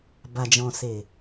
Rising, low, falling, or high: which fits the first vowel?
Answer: low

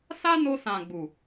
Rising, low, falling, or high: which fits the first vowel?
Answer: high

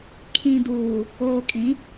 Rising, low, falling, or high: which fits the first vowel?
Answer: low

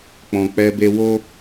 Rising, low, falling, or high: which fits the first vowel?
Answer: low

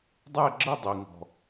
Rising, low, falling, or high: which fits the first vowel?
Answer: falling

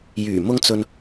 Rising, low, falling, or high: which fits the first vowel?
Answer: low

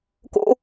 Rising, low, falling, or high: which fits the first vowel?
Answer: high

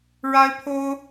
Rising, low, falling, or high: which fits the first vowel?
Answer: high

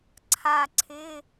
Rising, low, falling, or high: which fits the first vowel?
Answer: falling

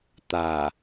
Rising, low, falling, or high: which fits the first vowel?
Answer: low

